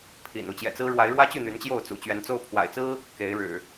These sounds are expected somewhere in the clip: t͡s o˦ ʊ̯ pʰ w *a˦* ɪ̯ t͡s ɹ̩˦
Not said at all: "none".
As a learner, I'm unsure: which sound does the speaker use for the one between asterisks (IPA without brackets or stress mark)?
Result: a̰˨˩